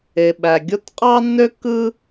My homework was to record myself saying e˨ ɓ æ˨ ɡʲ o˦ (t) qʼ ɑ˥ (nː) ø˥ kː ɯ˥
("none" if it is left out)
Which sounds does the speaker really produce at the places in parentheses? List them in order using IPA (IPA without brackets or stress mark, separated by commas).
t, nː